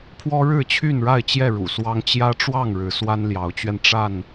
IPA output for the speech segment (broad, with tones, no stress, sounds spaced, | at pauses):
pʰ w ɔ˦ ɻ ɻ̩˥˨ t͡ɕʰ y˥˨ n ɻ a˥˨ ɪ̯ t͡ɕ j ɛ˥˨ ɻ ṵ˨˩ s w ɑ˦ ŋ t͡ɕ j ä˦ ʈ͡ʂ w ɑ˥˨ ŋ ɻ ɻ̩˨˦ s w a˦ n l j ɑ˨˦ ʊ̯ t͡ɕ ɥ ɛ˧ n ʈ͡ʂ a˥˨ n